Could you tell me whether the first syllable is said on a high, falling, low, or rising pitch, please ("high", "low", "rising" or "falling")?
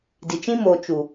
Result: low